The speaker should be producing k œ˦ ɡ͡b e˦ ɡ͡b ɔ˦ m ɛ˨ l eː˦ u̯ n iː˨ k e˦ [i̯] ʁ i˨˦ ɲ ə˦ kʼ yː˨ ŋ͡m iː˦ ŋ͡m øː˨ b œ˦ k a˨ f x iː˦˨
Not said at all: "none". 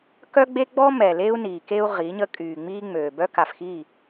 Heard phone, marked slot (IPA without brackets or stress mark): u̯